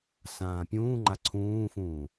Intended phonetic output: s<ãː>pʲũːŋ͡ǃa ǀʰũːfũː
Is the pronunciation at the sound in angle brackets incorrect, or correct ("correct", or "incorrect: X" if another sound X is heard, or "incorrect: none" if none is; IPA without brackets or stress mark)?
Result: correct